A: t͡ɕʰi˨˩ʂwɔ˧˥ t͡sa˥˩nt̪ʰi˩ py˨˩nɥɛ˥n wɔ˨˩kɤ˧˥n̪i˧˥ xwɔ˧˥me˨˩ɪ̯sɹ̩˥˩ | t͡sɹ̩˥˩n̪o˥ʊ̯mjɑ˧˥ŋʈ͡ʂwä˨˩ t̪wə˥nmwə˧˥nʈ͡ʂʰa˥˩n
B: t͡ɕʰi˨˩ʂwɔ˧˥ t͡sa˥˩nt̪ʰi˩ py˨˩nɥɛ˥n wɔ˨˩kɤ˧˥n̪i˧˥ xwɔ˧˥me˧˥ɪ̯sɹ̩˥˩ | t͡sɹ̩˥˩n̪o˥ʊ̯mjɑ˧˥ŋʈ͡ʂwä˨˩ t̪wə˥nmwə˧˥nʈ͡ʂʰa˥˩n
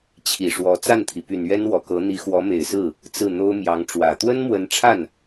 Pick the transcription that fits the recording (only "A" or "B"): A